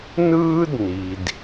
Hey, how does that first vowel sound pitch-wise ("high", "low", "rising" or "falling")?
high